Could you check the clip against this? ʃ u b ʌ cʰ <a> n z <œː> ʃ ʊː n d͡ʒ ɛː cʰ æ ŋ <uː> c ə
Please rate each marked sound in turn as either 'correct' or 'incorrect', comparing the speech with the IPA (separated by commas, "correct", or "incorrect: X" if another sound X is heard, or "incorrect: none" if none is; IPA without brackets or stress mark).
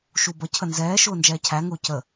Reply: incorrect: ə, incorrect: ɛː, incorrect: ʊː